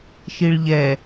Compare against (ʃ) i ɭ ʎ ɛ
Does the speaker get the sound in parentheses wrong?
no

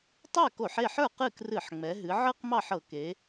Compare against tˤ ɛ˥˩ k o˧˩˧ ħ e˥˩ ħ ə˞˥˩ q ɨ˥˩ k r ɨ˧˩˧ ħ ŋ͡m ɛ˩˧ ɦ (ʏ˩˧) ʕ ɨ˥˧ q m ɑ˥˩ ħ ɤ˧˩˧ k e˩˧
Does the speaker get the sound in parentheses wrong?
yes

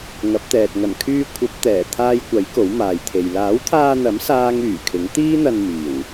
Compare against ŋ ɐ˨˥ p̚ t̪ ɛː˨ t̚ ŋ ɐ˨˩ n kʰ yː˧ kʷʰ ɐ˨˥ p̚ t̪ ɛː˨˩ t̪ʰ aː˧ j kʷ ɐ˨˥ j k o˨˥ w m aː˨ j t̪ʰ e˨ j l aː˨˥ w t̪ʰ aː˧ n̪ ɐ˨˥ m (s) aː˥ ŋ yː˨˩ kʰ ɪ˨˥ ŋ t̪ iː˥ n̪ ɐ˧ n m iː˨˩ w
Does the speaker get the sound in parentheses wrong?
no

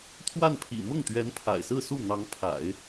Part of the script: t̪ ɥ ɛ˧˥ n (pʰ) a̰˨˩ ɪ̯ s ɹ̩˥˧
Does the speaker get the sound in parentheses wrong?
no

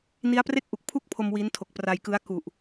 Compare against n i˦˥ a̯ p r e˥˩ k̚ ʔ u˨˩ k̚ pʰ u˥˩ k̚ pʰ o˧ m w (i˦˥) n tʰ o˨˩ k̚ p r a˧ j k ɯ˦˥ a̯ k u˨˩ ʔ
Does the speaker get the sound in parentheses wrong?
no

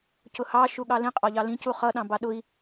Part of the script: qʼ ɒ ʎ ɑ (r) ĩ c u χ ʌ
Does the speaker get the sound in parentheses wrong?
yes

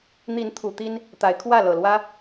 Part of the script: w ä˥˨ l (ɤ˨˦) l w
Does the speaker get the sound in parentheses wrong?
yes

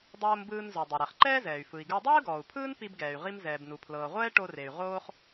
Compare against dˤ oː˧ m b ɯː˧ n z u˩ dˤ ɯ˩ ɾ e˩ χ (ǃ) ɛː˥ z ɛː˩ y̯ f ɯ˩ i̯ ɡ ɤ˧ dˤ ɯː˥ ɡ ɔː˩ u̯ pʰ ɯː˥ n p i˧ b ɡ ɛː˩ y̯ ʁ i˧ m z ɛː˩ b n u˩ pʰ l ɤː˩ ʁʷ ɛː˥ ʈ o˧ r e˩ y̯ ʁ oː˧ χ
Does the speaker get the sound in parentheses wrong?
no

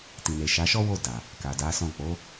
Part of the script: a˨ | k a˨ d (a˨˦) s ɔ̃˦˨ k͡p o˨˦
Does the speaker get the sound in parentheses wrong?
no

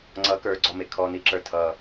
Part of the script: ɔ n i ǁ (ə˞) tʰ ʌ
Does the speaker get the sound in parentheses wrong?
no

